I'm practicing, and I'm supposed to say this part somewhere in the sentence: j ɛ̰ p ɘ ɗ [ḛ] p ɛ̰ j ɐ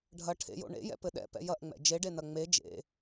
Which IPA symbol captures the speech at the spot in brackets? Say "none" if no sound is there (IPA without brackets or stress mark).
ɛ̰